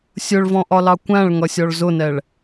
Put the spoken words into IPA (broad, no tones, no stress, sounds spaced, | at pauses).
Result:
sʲ ʊ ɭ v ɔ̃ ʔ ɒ l ɑ kʷ æ̃ ɭ ŋ ʌ sʲ ɔ ɭ z ʊ n ɛ ɭ